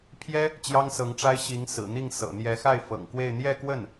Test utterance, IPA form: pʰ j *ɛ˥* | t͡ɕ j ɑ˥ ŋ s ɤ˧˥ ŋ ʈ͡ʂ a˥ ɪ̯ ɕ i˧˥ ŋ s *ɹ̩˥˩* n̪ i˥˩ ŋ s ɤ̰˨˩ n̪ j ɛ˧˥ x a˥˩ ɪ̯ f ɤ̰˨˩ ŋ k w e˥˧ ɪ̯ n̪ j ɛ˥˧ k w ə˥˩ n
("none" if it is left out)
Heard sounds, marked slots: ɛ˥, ɹ̩˨˩

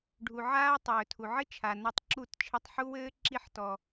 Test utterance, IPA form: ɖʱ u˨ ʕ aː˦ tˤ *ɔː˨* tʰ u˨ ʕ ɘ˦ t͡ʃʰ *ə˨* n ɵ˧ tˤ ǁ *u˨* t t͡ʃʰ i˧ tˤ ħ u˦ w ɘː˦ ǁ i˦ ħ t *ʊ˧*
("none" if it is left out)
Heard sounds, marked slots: ɵː˨, a˨, u˦˨, ɔ˧

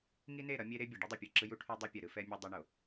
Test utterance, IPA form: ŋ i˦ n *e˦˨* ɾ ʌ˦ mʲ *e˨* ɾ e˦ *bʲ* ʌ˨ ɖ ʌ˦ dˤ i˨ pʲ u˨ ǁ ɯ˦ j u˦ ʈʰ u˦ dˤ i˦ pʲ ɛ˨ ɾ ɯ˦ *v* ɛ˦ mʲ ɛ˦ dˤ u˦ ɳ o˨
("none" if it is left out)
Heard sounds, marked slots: e˦˨, e˦, bʲ, f

